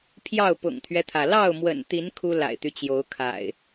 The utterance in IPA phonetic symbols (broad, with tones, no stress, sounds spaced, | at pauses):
pʰ j ɑ˥˨ ʊ̯ p ʊ̰˨˩ ŋ t̪ʰ ɥ ɛ˦ t̪ʰ ä˩ l ɑ˥˨ ʊ̯ m w ə̰˨˩ n t̪ i˨˦ n kʰ u˦ l a̰˨˩ ɪ̯ t̪ y˦ t͡ɕ j o˨˦ ʊ̯ kʰ a̰˨˩ ɪ̯